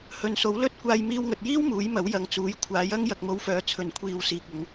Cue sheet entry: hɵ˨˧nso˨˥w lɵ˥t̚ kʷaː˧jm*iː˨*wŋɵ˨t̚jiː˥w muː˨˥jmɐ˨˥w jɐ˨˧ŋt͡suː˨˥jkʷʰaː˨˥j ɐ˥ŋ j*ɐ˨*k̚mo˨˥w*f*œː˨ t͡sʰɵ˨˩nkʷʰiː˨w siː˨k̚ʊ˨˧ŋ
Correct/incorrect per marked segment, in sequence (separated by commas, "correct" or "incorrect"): incorrect, correct, correct